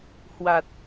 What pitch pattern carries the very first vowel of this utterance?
low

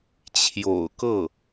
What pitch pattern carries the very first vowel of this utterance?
low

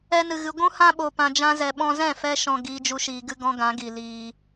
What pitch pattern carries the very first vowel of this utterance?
high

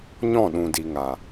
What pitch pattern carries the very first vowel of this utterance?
falling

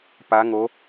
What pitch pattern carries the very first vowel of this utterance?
rising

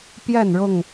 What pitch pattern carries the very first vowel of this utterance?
falling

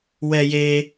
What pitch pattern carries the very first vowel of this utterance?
high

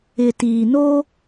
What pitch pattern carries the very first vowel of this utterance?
low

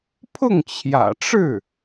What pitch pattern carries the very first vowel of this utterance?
falling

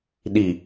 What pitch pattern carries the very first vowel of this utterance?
low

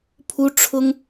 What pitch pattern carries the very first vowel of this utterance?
high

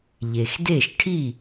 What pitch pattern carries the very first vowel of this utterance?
low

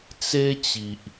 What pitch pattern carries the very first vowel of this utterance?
high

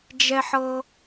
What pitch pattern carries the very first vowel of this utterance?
high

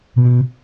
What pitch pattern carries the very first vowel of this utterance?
high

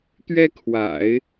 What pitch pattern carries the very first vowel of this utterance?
high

